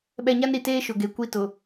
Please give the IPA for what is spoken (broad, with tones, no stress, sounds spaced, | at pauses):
ɓ ɛ˨ ɲ a˦ n ɾ i˨ t eː˦ ʃ ʊ˨ ɡ e˨ kʷ i˦ t ʊ˨